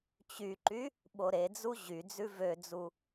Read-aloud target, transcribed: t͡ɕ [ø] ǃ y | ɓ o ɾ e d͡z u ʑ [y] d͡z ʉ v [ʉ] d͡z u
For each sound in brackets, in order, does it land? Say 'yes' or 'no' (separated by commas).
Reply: no, yes, no